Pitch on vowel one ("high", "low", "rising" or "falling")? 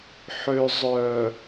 low